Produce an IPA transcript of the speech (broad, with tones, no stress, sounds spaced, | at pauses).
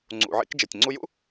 ŋ͡ǀ ṵ˩ ʕ ḭ˧ k d͡ʒ e˩ tʲ ŋ͡ǀ u˧ j ṵ˥